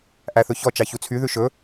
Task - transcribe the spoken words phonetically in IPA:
ʔ æ θ ɵ ç ɔ t͡ʃ ɑ ç u t͡sʰ y ð ʉ ʃ ɵ

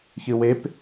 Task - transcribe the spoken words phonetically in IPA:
ç ɨ w e p

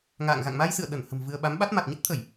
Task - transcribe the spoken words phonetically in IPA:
ŋ a̰ː˧˨ ŋ ɣ a̰˧˨ ŋ m a˧ j s ɨ̰˧˨ ə̯ ɗ ə˧˩ n h ə̤˨˩ m v ɨ˧ ə̯ ɓ a˨˦ m ɓ a˦˥ t̚ m a˨˩ t̚ ɲ ə˦˥ t̚ t̪ʰ ə˧˩˨ j

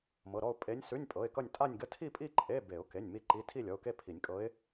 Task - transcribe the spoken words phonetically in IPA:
m ɤ˩˧˩ ɾ ɔ˥˧ ʊ̯ pʼ e˧˥ nʲ s ʉ˧˥˧ nʲ pʼ ɤ˩˧˩ ɪ̯ k ʌ˥˧ nʲ tʼ a˥˧ nʲ ɡ ə˧˥˧ tʰ i˥˧ pʼ i˥˧ ǃʼ e˧˥˧ b e˨˩˦ ʊ̯ k e˩˧˩ nʲ m i˥˧ ǃ i˧˥˧ tʰ i˥˧ lʲ ɔ˩˧˩ ʊ̯ k e˥˧ pʰ i˨˩˦ nʲ kʼ ɤ˧˥ ɪ̯

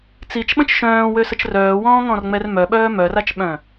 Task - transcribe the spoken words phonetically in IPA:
t͡s i t͡ʃ ɓ ə̃ t͡ʃ ʃ œ̃ː w ø s ə t͡ʃ r œː w ɔ̃ː ŋ ɔ̃ r ŋ͡m ɛ r m œ ɓ œː m œ r a t͡ʃ ɓ œ̃

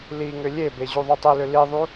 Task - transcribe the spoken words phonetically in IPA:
l i ŋ ʏ lʲ e b e ʑ u ðˤ u tˤ i l ʏ l i ðˤ u

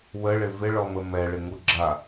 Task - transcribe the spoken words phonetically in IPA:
w ə ɭ ɪ v ɪ ɭ ɔ m ə m ɛ ɭ ɪ ŋ u ɡ͡ǁ a

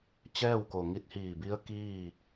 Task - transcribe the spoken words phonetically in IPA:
t͡ɕ ɛː˥˨ w k o˩ ŋ i˧ t̚ h iː˧˩ b i˧˥ ə̯ k iː˥˨

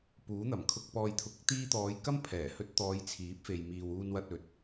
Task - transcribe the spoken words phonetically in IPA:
p uː˨˥ n̪ ɐ˨˩ m kʰ ʊ˨ k̚ p ɔː˨ j t̪ʰ ʊ˨ k̚ t̪ iː˧ t̪ ɔː˨˧ j k ɐ˥ m pʰ ɛː˨˩ h ɵ˧ t̚ t̪ ɔː˨˧ j t͡sʰ iː˨˥ p̚ f e˨ j m iː˨ w uː˨ n w ɐ˨ t̚ ɵ˨˥ t̚

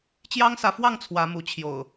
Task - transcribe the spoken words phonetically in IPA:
t͡ɕ j ɑ˦ ŋ s ä˨˦ f w ɑ˥˨ ŋ t͡sʰ w ä˨˦ m u˨˦ t͡ɕʰ j o̰˨˩ ʊ̯

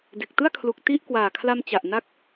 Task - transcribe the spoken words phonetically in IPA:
d e˨˩ k̚ t ɯ˥˩ a̯ kʰ l u˨˩ k̚ t i˥˩ ʔ k w aː˨˩ kʰ l a˧ m t͡ɕ a˨˩ ʔ n a˥˩ k̚

